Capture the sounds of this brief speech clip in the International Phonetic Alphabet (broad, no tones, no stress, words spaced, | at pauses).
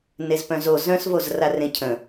nezpœ̃zo zœ̃s vozrarẽcʰə̃